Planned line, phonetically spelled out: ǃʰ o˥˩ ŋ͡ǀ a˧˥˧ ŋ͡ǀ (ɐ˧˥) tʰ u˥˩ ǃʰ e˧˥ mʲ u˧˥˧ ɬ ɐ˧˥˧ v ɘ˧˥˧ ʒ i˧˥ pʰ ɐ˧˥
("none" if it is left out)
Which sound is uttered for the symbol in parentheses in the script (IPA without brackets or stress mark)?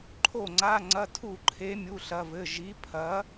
ɐ˧˥˧